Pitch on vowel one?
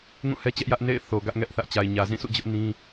falling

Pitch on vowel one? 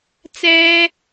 high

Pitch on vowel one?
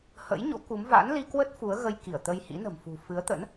rising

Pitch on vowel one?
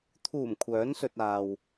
low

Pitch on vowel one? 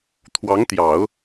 rising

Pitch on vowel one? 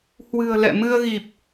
low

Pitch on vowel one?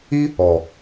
high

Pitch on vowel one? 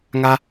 high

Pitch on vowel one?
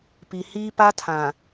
low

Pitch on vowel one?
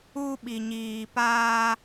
high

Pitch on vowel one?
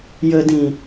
low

